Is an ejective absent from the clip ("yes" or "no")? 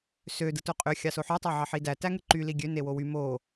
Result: no